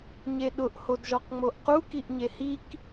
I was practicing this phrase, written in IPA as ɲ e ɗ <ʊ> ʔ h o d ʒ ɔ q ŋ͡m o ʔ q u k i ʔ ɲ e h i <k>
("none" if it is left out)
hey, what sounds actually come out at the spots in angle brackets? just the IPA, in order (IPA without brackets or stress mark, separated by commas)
ʊ, k